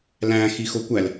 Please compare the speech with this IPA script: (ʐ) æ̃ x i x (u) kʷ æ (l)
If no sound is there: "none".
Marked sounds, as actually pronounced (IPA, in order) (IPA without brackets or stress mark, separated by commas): l, o, l